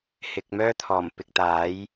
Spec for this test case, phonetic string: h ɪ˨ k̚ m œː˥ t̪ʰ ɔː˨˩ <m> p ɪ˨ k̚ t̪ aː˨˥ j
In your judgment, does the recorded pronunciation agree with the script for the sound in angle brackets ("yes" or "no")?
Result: yes